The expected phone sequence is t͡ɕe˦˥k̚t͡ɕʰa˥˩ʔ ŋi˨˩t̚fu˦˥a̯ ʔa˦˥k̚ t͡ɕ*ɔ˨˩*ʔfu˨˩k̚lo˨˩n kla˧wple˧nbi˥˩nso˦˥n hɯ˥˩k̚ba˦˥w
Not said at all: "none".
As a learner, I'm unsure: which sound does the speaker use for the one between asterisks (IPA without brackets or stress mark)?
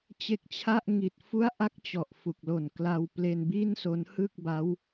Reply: ɔ˨˩